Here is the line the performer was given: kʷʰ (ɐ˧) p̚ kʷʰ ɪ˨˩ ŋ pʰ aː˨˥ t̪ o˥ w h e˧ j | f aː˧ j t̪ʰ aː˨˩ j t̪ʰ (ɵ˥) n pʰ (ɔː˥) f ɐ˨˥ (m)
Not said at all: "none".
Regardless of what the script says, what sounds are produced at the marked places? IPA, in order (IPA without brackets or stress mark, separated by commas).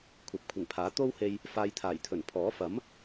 ɐ˨˥, ɵ˨˩, ɔː˨˥, m